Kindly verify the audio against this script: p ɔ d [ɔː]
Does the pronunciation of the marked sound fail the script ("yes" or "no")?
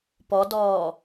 no